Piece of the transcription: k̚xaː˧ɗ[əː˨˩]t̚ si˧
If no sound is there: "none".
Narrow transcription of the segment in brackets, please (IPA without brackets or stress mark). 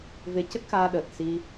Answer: əː˨˩